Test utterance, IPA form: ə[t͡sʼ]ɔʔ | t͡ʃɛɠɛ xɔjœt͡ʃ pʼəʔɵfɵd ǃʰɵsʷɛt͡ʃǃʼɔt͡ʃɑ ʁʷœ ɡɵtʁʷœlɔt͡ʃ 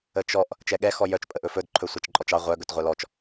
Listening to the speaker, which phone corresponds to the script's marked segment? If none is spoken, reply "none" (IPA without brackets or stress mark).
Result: t͡ʃ